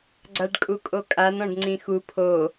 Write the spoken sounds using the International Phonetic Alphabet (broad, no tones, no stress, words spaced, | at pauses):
ɡ͡ǀaɖkʼukʼokʼan ɔ̃ɖŋ͡ǀĩxu pʰo